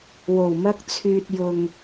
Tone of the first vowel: low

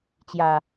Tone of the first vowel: low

